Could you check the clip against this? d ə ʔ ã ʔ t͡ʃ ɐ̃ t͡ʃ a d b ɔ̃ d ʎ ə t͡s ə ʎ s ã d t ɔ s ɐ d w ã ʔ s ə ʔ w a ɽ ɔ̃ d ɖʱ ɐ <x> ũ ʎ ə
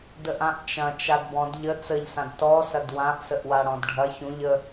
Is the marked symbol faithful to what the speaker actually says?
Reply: no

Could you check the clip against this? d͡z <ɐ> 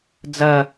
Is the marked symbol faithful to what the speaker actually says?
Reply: yes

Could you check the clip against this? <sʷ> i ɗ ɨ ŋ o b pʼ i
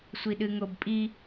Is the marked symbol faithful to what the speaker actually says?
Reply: yes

